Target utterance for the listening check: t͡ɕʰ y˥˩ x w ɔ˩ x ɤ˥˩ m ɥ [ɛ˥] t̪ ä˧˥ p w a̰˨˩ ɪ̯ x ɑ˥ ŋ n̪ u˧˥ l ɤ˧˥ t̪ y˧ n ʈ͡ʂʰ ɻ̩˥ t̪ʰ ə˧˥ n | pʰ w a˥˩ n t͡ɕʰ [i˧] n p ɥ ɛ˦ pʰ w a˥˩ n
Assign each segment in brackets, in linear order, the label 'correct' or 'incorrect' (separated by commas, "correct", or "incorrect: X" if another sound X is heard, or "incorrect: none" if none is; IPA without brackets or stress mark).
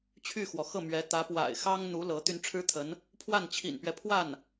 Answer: incorrect: ɛ˧˥, incorrect: ḭ˨˩